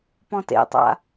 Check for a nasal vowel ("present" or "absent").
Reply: present